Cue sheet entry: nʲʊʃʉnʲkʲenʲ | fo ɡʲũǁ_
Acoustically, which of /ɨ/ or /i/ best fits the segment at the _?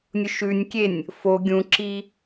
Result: i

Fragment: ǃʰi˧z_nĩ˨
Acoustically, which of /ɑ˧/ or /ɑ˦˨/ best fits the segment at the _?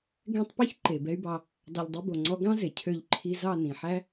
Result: ɑ˦˨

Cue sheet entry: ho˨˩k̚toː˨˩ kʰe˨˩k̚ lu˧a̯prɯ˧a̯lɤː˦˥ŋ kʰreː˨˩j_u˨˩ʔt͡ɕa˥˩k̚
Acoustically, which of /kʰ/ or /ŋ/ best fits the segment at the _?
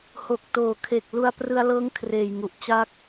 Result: ŋ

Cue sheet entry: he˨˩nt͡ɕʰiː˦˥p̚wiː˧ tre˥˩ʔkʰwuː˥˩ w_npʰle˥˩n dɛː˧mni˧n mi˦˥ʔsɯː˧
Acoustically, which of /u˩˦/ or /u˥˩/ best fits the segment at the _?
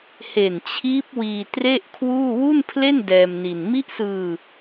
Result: u˥˩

